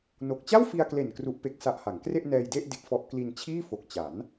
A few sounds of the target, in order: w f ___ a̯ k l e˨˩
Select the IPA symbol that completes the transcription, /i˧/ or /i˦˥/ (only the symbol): i˧